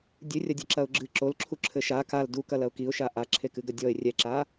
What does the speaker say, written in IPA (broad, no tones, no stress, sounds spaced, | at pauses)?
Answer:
dʲ ɨ rʲ ɐ dʲ ɐ ǁ ɐ ʊ̯ ɡ͡ǁ ɨ ǁ o l ǁʰ u ǁʰ ɘ ʃ a k a l d u k ɐ l ɐ ʊ̯ k i ʊ̯ ʃ a ʔ a ǁʰ e k ɨ ɡ ɐ dʲ ɔ ɪ̯ rʲ ɛ ǁ a